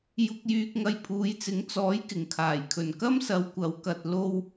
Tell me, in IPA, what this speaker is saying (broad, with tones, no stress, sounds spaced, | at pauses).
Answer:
j ʊ˧ k̚ j yː˧ k̚ ŋ ɐ˧ j pʰ uː˨˧ j t͡s ɪ˨˥ ŋ t͡s ɔː˨˥ j k ɪ˨˩ ŋ kʰ aː˨˩ j kʰ ɵ˨˩ n k ɐ˥ m s ɐ˨˧ w kʷ ɐ˨˧ w k ɐ˨ t̚ l o˧ w